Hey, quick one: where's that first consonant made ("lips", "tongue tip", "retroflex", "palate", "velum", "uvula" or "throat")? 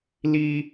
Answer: tongue tip